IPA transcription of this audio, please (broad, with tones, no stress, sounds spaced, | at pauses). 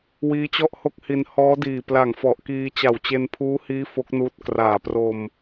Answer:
w iː˦˥ t͡ɕ ɔ˥˩ ʔ h o˥˩ k̚ h i˧ n h ɔː˦˥ d iː˨˩ p l a˨˩ ŋ f ɔ˨˩ ʔ k iː˧ t͡ɕ a˨˩ w t͡ɕ e˧ n pʰ uː˦˥ h iː˦˥ f o˦˥ k̚ n uː˦˥ t̚ k r aː˨˩ p r o˧ m